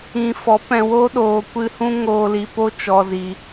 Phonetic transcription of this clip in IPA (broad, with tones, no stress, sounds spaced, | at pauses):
ĩ˨ f ɔ˨˦ p ɛ̃˨ w o˦ ɗ oː˨ kʷ ɨ˧ h ũ˦ ŋ oː˧ l i˧ p o˦ t͡ʃ ɔ˧ z i˨